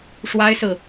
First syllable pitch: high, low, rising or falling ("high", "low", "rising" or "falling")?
high